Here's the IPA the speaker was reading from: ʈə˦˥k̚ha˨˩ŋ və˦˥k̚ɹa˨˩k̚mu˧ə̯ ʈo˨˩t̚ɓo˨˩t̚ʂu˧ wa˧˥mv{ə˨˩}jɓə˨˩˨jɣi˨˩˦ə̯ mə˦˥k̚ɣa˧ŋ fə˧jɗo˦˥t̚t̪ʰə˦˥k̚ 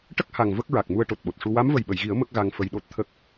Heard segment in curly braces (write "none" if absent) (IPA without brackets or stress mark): ə˨˩